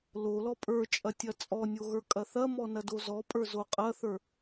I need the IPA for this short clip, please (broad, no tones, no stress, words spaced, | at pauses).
lo lɔpʼə˞t͡ʃʼɐ tʲɐt͡sʼɔnʲo ɣə˞kʼɐθɐmɔ nɐdozɔpʼə˞ zoqʼɐθə˞